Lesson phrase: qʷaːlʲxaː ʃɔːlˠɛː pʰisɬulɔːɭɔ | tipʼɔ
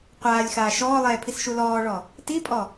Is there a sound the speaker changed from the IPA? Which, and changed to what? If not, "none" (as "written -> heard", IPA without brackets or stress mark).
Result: ɬ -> ʃ